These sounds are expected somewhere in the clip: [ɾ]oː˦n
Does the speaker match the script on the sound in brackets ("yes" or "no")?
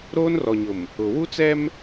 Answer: yes